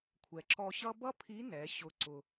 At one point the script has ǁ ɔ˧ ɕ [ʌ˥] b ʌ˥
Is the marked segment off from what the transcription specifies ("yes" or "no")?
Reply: no